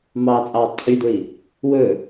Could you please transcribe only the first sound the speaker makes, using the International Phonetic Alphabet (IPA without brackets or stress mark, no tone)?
m